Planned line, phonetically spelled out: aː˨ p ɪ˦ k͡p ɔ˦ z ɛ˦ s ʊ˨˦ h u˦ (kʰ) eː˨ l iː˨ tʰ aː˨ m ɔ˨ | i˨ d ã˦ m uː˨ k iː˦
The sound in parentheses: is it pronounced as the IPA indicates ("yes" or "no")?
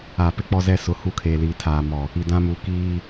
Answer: yes